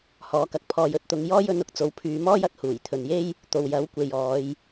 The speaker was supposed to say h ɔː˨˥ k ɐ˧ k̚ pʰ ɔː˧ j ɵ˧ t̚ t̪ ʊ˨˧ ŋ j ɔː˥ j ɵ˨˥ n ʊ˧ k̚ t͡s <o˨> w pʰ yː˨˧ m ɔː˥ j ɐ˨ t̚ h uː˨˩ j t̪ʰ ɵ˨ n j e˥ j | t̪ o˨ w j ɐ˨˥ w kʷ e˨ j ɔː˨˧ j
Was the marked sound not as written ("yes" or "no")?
yes